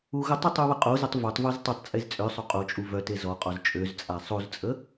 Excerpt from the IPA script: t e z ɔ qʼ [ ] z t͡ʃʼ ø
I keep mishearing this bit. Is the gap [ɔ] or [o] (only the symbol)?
ɔ